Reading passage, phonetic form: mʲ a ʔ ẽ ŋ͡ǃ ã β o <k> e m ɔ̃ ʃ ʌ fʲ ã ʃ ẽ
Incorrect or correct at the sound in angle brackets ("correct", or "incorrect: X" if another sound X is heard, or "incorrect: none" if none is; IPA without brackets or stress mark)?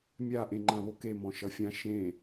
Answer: correct